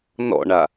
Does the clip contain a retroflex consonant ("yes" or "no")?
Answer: yes